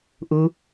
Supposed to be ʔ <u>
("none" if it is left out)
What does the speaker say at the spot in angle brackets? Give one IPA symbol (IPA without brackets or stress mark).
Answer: u